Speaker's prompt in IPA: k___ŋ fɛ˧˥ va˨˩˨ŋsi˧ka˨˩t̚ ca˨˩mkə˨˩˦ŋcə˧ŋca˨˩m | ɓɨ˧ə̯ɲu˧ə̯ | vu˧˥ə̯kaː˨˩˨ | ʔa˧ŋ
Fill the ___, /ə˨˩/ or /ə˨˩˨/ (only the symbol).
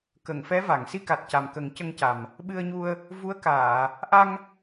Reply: ə˨˩˨